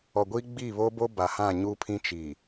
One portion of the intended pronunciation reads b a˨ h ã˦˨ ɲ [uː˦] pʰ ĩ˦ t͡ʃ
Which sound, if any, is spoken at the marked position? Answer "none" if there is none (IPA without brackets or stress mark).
uː˦